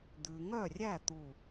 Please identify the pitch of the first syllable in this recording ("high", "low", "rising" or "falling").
low